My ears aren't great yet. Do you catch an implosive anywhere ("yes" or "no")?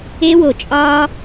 no